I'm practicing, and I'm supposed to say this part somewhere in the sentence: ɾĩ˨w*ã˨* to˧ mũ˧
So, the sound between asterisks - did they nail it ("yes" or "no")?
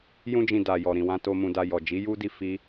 no